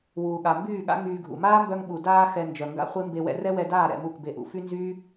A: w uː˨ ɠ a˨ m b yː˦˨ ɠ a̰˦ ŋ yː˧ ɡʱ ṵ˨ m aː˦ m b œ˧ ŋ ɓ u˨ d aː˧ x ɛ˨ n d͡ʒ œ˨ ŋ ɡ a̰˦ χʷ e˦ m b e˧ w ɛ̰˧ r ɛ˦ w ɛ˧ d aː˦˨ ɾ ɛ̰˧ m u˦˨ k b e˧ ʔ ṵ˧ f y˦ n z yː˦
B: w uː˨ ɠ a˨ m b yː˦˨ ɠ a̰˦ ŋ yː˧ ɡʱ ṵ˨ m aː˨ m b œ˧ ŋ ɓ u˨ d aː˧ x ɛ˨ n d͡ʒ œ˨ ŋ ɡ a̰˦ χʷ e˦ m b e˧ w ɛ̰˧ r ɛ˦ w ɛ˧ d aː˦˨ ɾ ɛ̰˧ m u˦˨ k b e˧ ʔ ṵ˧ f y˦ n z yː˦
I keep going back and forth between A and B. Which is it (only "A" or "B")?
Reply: A